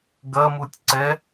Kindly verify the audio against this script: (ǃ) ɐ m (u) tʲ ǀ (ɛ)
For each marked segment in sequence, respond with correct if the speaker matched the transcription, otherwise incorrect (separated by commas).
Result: incorrect, correct, correct